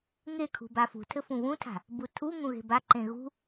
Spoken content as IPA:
ŋ e kʰ ṳ b a f ṳ tʰ ɘ f ũ β ũ tʰ a̤ | b u tʰ u ŋ ũ ɣ e̤ b a ǃ ẽ ɣ ṳ

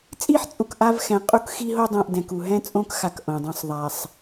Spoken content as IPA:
t͡sʼ i˦ ħ t͡sʼ u˨ k ʔ a˦ v x ɛ̃˨ qʼ u˦ k x i˦ ɦ o˦ dˤ õ˨ ʔ d ɛ̃˨ k u˨ ɦ ɛ̃˦ t͡sʼ õ˦ k x a˨ k ʔ õ˨ dˤ õ˦ sˤ ðˤ a˨ sˤ

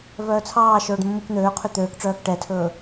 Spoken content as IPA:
v œː t͡sʰ ɑː ʃ ɵː ɖ mː u k n̪ øː qʰ y t̪ øː k ʈ͡ʂ œː k ʈ ɛ tʰ ɵː

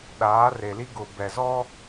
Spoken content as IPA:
ɗ aː˨˦ r e˨ l i˦ ɡ ʊ˨ b ɛ˨ z ɔ˦

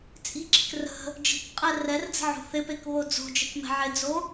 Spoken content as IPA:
t͡sʼ i̤ ǁ ɪ k r ə̤ | d͡ʒ i̤ k qʼ ɛ r ɛ r d͡z ə̤ ʕ o̤ θ ɪ p e k β o d͡z o̤ d͡ʒ ə k m ɛ̤ ʕ ɪ d͡z o

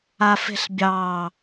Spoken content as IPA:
a f e̤ ɬ bʲ ɑ

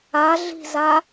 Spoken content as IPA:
a ɮ i̤ z a

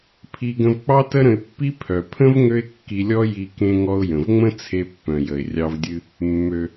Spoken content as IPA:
pʰ i˧ ɡ ə̃˧ v k͡p ɑ˥ t ə˥ ɾ ə̃˧ ɪ̯ pː i˥ pʰ œ˩ pʰ ə̃˥ v ŋ ø˥ ɪ̯ kː i˧ lʲ ɔ˥ j i˧ k ẽ˧ ŋ ɔ˧ ʊ̯ j ə̃˩ v ŋ͡m ə̃˥ t͡sʰ e˧ pː œ̃˩ j ə˩ ɪ̯ rʲ ɑ˧ v dʲ ɨ˧ | mː ø˩

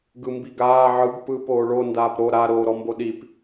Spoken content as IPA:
ɡ ɯ m b i ɡ aː ʕ ɯ ɡ p ɯ p oː ɭ o n d aː p ɾ o ɾ a ɾ oː ɾ ɔ m b o ɗ i p

